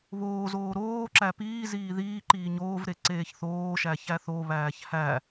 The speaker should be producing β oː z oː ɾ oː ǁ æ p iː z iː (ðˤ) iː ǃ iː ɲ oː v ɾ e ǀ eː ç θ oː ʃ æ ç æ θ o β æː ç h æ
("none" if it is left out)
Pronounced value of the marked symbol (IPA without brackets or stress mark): ð